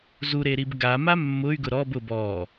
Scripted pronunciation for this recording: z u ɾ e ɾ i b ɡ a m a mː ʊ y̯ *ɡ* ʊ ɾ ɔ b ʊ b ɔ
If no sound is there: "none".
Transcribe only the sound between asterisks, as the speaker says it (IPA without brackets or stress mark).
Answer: ɡ